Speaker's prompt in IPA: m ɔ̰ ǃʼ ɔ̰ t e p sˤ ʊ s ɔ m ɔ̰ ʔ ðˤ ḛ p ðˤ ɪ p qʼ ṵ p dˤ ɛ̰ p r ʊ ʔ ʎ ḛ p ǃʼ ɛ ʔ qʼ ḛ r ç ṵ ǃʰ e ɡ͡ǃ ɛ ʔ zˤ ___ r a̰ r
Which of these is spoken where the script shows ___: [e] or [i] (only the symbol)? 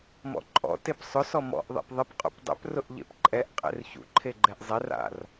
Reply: e